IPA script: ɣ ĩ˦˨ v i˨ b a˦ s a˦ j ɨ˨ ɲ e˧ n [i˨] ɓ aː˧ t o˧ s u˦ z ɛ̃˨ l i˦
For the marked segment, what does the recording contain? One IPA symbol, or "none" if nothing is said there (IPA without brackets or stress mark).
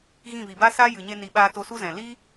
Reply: i˨